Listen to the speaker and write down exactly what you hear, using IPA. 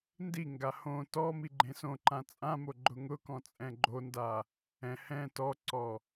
ndiŋɡa hõ tɔ miɡ͡ǃẽsõǃã t͡sʼãmo ɡ͡ǃʊŋʊkɔ̃ t͡sʼɛ̃ɡ͡ǃonda | ɛ̃ hɛ̃ tɔǀɔ

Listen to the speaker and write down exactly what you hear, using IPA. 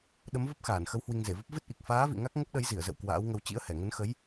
ɗə˨˦mvə˦˥p̚ xaː˧˩nxə˨˦w hwi˧ŋze˧˩və˦˥p̚ vɨ˦˥t̚ʔi˨˩k̚ faː˨˦vḭ˧˨ ŋa˦˥k̚ ŋə˦˥p̚ɗə˨˦j zi˧˩ə̯zə̰˧˨w kwa̰ː˧˥wŋə˧w t͡ɕḭ˧˥ə̯hɛ˧˩ ŋə˨˦nxə˨˦j

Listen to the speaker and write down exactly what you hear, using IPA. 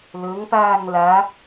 lɵŋpaːŋ la

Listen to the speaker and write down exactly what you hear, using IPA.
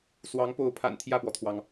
swɑ˧˥ŋpo˧˥ʊ̯pʰa̰˨˩n t̪ʰjä˥˩pwɔ˩t̪ʰwɑ˩ŋ

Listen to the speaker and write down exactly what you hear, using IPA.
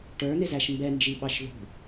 ʈə˞ n̪ɪzæʃmbɛ nd͡ʒiɓɑʃðṳ

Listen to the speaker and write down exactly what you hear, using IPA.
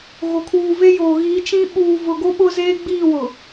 ɣo˨kʰuː˨ve˦joː˨ ɣiː˨˦t͡ʃĩ˦ ɓuː˨vʊ˨ ɡo˦ ɓʊ˦zeː˦ɡ͡biː˦˨ wʊ˨

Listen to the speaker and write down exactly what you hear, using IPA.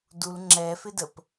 dul ŋ͡ǁɛfɪdəp

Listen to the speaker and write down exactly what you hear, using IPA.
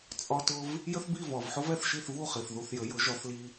t͡sʼɒ˧tʊ˧v | jə˥θbi˥˩vɒ˩vħʊ˥v ɛ˥˩θʃi˥˩θvu˥˩χi˩θ ðu˧θjə˩˥jʊ˩˥ ʒɒ˩˥θli˧

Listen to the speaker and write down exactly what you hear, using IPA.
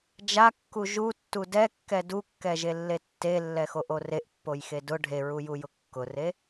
d͡ʒakːu ʒutːu dɛkːɛ dukːɛʒelːe tːelːɛxoʔo reʔpːojxe dʊ ɖʱeɹujujʊ kːʊre

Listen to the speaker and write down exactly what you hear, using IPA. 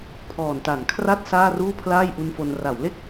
pʰɔː˨˩nta˩˦nkʰra˥˩t̚ saː˥˩ruː˥˩ pʰlaː˥˩jʔu˦˥nfo˧n ra˩˦wle˥˩k̚

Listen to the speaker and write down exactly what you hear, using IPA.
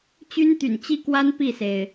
t͡ɕy˥nt̪y̰˨˩nt͡ɕi˥kwa˥n pi˥˩se˩ɪ̯

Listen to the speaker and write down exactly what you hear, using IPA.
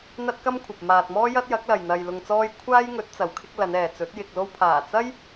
n̪ɐ˥t̚ kɐ˥mkʷʰɐ˨p̚ maː˨t̚mɔː˥jɐ˥t̚ jɐ˨˥k̚lɐ˨j n̪ɐ˧jlʊ˧ŋt͡sɔː˥j kʷʰaː˥jŋɵ˨˥t̚ t͡sɐ˨wkʰɪ˥k̚ lɐ˨˧nɛː˨t͡sɵ˨˥t̚ jɪ˨k̚lo˧wpʰaː˨˩t͡sɐ˥j

